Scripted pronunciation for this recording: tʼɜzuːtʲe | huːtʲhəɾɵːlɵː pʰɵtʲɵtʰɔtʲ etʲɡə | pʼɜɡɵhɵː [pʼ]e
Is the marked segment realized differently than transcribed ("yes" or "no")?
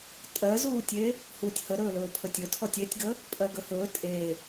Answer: yes